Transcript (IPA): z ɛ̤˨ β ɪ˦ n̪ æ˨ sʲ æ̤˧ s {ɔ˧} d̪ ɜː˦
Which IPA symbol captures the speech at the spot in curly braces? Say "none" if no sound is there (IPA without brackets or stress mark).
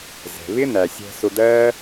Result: ʊ˧